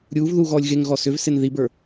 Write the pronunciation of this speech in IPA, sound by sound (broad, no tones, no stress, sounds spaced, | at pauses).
ɾʲ uː v ð uː ɣ ɔː lʲ ɣ e ŋ ɣ ɔ s ʏ v s e n ð i b ə˞